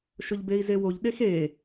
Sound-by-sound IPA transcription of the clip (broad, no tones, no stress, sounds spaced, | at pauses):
ʃ ʊ ʎ b e i̯ z e w o ʎ ɗ e x e